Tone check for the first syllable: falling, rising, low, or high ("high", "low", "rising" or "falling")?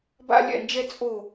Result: high